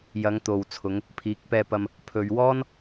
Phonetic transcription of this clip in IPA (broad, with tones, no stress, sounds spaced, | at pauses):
j ɐ˨˧ ŋ t̪ o˨ w t͡sʰ ʊ˨˧ ŋ | pʰ iː˨˥ k̚ p ɛː˧ p ɐ˧ m | pʰ ɵ˨ ɥ w ɔː˥ n